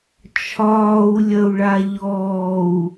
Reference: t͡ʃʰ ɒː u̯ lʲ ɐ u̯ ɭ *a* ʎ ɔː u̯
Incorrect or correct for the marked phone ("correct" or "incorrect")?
correct